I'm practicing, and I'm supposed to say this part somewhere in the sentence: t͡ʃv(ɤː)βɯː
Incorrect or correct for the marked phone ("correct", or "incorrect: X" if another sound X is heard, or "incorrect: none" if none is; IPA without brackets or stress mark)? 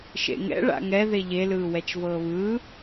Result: correct